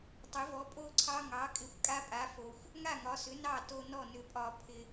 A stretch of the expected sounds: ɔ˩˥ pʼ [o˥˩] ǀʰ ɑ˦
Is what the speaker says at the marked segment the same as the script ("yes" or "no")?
yes